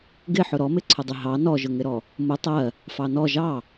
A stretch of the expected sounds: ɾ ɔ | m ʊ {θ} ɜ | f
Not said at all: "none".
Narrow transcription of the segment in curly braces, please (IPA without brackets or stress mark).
tˤ